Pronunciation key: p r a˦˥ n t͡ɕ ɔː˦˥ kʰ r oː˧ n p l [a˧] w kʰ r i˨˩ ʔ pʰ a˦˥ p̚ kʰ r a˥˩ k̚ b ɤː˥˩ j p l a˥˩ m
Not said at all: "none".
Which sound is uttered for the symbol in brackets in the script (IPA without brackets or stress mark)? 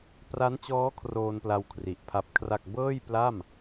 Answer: a˧